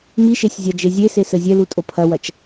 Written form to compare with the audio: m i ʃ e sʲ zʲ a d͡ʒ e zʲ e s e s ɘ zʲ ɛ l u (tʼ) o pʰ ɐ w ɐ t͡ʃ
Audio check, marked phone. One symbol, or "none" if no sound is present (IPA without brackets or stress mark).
tʼ